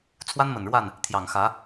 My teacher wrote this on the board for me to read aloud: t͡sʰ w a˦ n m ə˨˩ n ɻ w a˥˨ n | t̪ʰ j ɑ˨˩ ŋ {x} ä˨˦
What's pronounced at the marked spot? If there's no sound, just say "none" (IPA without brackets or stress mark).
x